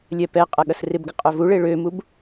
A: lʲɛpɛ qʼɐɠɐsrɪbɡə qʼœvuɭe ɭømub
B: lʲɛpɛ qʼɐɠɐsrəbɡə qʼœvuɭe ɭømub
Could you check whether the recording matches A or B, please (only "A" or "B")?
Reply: A